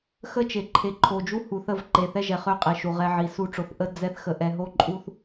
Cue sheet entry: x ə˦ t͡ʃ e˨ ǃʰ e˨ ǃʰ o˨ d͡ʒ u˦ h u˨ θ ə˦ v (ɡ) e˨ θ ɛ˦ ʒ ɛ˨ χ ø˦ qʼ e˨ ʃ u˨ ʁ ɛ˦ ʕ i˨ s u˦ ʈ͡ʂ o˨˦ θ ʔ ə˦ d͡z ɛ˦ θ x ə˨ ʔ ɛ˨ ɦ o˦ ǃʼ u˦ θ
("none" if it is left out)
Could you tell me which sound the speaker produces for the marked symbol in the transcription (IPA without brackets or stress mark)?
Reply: ǃ